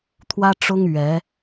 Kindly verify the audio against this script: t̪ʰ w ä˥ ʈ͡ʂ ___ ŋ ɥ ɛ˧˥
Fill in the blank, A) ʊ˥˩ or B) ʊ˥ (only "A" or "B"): B